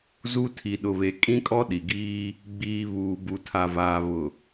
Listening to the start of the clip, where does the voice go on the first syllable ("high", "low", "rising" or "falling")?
high